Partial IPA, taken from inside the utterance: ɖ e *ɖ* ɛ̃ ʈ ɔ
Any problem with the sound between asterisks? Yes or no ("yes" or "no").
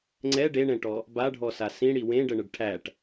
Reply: yes